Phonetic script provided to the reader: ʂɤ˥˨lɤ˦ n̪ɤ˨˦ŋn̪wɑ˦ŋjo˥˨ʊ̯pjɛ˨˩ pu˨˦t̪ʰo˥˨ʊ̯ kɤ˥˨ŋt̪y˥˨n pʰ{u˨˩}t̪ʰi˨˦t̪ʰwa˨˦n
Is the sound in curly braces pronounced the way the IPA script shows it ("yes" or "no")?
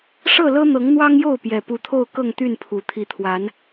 yes